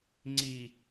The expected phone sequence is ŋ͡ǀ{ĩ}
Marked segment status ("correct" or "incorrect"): incorrect